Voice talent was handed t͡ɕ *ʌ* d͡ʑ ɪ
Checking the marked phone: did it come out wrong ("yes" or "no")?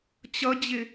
no